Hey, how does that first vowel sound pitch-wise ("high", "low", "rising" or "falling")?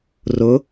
rising